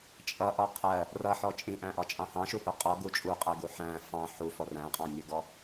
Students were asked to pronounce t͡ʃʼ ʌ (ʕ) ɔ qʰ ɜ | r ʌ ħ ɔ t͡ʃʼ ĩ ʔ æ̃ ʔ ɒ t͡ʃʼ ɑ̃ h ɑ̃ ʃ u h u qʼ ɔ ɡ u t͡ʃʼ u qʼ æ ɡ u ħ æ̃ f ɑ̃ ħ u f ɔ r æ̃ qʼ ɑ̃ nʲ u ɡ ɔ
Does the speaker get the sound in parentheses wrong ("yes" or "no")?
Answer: yes